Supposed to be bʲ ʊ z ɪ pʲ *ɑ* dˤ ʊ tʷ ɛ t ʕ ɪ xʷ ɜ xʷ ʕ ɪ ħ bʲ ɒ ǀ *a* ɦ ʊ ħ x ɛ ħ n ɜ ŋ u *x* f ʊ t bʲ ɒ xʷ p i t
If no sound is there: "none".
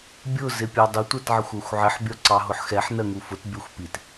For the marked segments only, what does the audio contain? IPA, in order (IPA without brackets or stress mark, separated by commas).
ɑ, ɑ, none